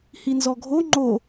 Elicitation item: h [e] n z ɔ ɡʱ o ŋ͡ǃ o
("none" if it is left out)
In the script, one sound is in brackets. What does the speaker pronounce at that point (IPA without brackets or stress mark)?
i